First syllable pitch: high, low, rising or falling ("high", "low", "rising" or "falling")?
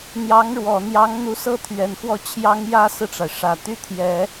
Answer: rising